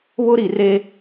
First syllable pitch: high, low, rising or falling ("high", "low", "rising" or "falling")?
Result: high